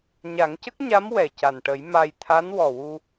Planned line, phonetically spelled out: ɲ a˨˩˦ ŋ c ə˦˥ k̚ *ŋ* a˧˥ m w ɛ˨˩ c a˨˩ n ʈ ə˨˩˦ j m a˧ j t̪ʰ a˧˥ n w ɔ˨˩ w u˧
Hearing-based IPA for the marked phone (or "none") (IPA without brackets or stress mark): ɲ